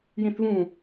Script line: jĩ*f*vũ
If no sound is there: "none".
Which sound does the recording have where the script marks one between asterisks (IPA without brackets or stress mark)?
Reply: θ